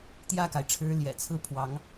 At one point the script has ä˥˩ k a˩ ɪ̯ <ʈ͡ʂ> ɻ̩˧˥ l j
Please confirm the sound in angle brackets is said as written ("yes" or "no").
no